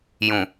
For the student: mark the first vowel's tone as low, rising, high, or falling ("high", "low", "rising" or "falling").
low